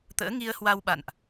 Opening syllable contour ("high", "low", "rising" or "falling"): rising